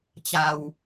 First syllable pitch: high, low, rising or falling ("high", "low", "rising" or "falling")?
low